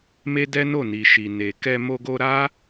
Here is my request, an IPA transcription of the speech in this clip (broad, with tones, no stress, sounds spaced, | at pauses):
m e˦ d ɛ˦ n o˦˨ n i˨ ʃ i˨ n e˨ k ɛ˧ m o˧ ɡ o˧ ɾ a˦